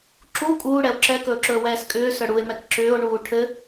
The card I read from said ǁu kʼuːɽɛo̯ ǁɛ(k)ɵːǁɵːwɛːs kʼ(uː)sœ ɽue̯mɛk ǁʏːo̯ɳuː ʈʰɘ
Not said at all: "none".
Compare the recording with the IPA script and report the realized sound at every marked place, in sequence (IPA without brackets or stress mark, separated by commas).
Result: k, ʏː